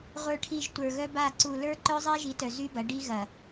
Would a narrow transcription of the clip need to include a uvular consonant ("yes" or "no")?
yes